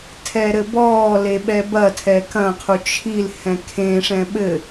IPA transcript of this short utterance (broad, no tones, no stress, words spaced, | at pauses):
tʰɛɾɘbɔːle ɓɛbɐtʰɛ kɐ̃qʰu t͡ʃʰil hɛ̃kʰẽʂɛ̃ ɓɘ